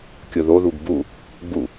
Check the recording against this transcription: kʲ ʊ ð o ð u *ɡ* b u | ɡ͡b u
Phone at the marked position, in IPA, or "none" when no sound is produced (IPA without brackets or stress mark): ɡ